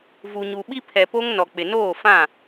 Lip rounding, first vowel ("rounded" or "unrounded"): rounded